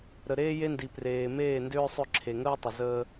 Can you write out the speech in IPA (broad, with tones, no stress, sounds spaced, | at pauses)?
ɾ ə˨ ɾ eː˦ j e˦ n d i˨ p r eː˨ m eː˦˨ n d ʏː˦ sˤ ʏ˦˨ ǁʰ e˨ ŋ əː˦ tˤ ə˨ z əː˦